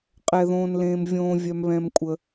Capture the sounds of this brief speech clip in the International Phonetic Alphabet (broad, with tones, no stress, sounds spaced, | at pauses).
qʼ ɛ˥ ð õː˥ n l ẽː˥ m vʲ õː˥ vʲ œ˥ m β ɛ̃˥ m kʷʼ ə˥